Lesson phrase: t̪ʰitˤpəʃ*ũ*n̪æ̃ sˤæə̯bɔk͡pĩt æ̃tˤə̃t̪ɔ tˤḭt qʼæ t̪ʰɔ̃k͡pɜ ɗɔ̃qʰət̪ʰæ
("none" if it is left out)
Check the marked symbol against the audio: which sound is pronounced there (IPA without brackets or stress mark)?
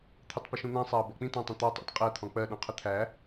ũ